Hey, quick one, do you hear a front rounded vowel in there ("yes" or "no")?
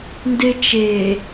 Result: no